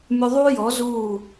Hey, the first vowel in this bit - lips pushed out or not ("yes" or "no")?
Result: yes